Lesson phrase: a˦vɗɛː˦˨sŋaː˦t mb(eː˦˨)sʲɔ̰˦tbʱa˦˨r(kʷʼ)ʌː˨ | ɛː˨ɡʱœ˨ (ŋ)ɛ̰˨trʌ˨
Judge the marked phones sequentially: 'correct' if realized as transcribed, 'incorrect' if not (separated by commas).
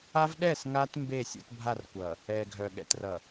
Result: correct, incorrect, incorrect